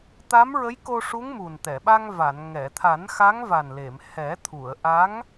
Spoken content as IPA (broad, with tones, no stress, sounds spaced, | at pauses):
t̪ a˧˥ m ɹ ə˧˥ j k o˧ ʂ u˧˥ ŋ m u˨˩ n t̪ ɛ˨˩˨ ɓ a˧ ŋ v a˨˩˨ n ŋ ɛ˨˩˨ t̪ʰ a˨˩˦ n x a˧˥ ŋ v a˨˩ n l e˨˩˨ m h ɛ˨˩˦ t̪ʰ u˨˩˨ ə̯ ʔ a˧˥ ŋ